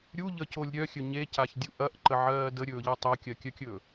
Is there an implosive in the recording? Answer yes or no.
no